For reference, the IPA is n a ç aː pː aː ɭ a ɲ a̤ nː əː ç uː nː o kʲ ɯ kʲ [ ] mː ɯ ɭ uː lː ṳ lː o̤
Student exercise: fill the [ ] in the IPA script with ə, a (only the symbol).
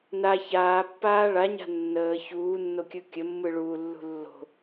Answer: ə